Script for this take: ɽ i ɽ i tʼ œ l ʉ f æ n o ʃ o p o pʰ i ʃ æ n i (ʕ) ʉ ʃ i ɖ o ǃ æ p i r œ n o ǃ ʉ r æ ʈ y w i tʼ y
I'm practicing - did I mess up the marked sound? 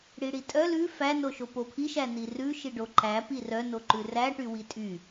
yes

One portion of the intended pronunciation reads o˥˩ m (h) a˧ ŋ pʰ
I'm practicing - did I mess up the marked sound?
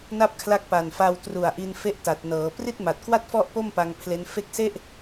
yes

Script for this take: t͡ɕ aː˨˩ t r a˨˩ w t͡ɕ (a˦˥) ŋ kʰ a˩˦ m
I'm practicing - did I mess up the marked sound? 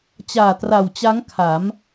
no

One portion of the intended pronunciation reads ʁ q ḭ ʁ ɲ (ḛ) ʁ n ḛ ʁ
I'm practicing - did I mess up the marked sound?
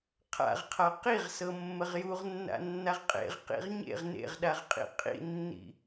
no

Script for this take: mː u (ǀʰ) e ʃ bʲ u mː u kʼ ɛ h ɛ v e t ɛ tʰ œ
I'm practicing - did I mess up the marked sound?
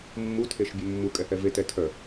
yes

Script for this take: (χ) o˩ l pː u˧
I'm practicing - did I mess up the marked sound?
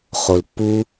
no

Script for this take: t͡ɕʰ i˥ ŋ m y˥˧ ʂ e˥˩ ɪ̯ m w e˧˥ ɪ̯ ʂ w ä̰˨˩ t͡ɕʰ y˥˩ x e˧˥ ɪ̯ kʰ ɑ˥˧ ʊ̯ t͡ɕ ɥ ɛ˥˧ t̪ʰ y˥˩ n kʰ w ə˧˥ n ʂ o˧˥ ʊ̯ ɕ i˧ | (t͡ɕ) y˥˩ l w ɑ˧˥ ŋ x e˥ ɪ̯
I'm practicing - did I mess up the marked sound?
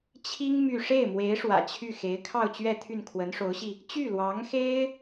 no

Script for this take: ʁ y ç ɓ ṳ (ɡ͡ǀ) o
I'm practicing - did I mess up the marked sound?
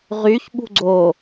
no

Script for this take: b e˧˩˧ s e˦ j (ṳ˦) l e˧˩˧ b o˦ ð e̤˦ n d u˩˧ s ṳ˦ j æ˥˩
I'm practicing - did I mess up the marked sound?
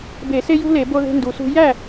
no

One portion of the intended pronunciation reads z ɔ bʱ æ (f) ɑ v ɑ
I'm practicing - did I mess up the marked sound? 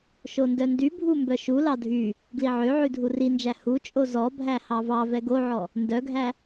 yes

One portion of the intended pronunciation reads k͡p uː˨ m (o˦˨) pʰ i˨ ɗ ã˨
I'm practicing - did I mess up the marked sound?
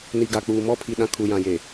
yes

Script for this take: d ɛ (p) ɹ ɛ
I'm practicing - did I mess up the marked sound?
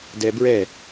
yes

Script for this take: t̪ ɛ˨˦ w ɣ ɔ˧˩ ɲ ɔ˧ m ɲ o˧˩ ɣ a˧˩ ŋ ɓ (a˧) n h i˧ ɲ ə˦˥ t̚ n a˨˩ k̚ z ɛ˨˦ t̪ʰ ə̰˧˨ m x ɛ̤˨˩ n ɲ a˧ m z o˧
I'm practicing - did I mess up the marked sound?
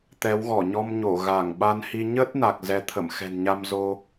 no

